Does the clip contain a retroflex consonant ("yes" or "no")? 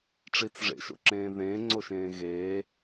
yes